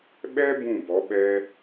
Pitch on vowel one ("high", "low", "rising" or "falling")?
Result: high